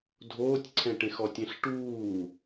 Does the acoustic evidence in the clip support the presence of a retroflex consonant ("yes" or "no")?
yes